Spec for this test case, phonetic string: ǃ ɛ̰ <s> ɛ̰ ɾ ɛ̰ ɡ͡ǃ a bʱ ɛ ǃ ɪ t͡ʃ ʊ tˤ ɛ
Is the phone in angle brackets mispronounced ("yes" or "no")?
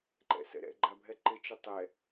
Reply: no